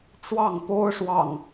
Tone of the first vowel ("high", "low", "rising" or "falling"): falling